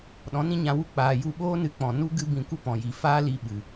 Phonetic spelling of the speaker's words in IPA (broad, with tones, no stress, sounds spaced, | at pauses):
ɗ ɔ̃˨˦ n ĩ˦ ɲ ã˧ w u˦ k͡p aː˨ j u˧ ɓ oː˦ n ɨ˧ k͡p ɔ̃˨ n u˦ ɡ ɨ˦ b ĩ˧ kʷ ə˦ p ɔ̃˨ j i˨ f aː˦ l i˧ ɓ ɨ˨